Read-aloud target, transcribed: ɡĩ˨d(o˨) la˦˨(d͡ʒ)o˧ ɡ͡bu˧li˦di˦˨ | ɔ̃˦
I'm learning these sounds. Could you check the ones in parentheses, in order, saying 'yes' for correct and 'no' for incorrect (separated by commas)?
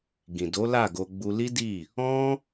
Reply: no, no